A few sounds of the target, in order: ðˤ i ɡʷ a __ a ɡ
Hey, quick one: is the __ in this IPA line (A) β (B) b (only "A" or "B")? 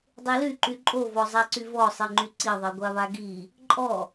A